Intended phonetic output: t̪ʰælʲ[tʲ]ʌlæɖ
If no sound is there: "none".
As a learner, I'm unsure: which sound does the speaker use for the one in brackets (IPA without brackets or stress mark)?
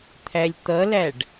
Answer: t̪